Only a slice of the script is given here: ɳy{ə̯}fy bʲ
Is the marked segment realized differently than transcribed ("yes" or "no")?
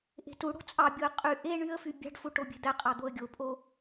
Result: no